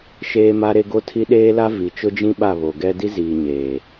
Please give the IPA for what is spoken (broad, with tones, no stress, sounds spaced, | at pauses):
ʃ eː˦ m a˦ ɾ e˦ ɡ o˦ tʰ i˦ ɗ eː˦ l a˦ v i˨˦ t͡ʃ ʊ˦ d͡ʒ ĩ˦ ɓ a˦˨ β o˨ ɡ ɛ˦ d i˦ z iː˨ ɲ eː˨